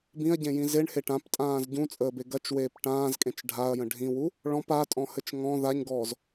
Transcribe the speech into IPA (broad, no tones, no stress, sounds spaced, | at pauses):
b ĩ ɐ̯ ɟ ẽ j ĩ z e ɳ h e ʈ ã p tʼ ãː z ɟ ũ t͡sʼ əː b e ɡ ɐ t͡ʃ w eː p ʈ ãː z kʼ ẽ t͡ʃ ɖʱ a ɐ̯ j ə̃ ɖʱ ĩ w u | ɭ ɔ̃ p a tʼ ɔ̃ h ɘ t͡ʃ ŋ ɔ̃ ð a ɲ ɡ ɔː z